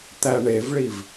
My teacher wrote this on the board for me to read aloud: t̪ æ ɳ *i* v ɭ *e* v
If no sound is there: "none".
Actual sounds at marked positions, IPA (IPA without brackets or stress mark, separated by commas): e, i